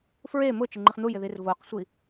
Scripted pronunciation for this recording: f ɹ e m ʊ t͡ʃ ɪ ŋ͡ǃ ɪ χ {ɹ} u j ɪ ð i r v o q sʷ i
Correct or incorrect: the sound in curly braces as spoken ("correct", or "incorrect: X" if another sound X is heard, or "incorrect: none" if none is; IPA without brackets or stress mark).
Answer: incorrect: n̪